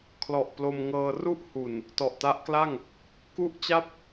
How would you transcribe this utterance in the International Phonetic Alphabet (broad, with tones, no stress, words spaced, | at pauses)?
kʰlɔ˨˩ʔ plo˧mŋɤː˧ru˥˩ʔ hu˨˩n | tɔ˨˩ʔta˦˥ʔkla˥˩ŋ | ku˥˩ʔt͡ɕa˥˩p̚